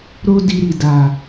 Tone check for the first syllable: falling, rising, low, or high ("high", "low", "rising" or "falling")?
high